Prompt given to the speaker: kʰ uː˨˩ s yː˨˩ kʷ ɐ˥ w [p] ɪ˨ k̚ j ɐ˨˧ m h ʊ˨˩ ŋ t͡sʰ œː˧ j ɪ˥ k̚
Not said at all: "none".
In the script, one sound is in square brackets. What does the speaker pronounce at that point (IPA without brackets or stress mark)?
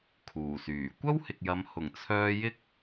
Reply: h